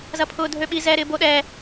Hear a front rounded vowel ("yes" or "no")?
yes